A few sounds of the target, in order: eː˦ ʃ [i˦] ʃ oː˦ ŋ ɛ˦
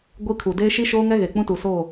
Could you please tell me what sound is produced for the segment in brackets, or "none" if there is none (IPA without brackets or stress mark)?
i˦